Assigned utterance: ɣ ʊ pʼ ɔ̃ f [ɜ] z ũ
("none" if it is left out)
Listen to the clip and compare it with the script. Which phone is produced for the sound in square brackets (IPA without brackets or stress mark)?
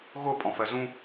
ɜ